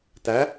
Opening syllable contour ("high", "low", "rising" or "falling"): rising